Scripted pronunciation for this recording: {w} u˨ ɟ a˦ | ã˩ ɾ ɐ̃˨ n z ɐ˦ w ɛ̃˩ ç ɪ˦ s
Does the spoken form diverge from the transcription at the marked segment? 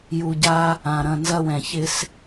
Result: yes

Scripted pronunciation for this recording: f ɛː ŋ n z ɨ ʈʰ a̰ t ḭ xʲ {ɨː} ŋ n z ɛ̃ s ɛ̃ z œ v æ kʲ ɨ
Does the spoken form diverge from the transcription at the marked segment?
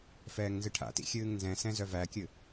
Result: no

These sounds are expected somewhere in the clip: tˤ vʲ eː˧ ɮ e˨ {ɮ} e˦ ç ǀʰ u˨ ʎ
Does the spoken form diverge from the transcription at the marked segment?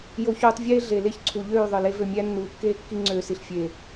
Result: yes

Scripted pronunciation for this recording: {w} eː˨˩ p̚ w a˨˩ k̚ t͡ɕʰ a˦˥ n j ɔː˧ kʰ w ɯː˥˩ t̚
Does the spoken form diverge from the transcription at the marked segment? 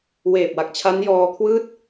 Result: no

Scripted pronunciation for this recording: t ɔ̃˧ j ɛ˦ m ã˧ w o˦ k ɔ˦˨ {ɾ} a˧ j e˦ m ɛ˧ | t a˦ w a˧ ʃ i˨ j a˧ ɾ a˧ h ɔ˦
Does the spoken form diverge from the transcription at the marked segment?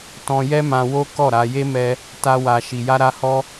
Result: no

